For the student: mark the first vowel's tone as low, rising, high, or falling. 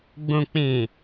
low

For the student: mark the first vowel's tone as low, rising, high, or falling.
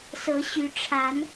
rising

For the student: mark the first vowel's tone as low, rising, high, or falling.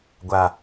low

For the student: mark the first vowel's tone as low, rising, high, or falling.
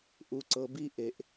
low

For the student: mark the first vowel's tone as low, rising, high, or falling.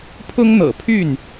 high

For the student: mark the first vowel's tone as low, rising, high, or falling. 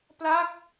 falling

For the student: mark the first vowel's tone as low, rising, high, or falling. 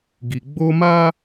low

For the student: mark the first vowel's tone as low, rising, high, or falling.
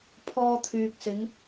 high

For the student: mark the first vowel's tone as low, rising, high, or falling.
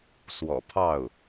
low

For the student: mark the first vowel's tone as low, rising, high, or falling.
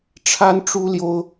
high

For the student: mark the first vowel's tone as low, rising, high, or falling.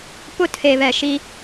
high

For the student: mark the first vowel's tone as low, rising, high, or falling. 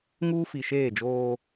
high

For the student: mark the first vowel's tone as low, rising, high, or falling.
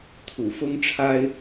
low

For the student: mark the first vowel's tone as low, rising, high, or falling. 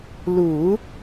low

